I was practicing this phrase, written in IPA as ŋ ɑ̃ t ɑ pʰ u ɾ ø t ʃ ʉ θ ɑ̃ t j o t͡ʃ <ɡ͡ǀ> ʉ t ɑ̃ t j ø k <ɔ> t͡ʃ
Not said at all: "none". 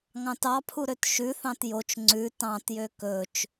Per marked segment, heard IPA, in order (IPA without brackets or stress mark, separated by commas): ŋ͡ǀ, ɵ